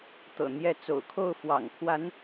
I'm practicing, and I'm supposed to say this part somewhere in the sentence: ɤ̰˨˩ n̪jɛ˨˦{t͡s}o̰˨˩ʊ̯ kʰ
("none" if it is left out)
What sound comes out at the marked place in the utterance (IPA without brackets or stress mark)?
t͡s